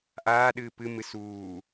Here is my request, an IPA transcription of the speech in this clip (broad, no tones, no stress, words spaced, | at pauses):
ʔaːɗɨː pɨmɨ suː